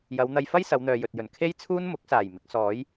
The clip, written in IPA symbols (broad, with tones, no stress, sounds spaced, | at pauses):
j ɐ˨˧ w n̪ ɐ˧ j f ɐ˥ j s ɐ˨˧ w n̪ œː˨ j ɵ˨ t̚ j ɵ˨˩ n kʰ e˥ j t͡sʰ uː˥ n m ʊ˨˥ k̚ s aː˨˩ j m ɪ˨˥ k̚ s ɔː˨˥ j